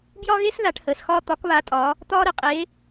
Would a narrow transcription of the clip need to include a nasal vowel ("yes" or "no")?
no